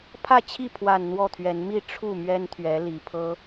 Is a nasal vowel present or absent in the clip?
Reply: absent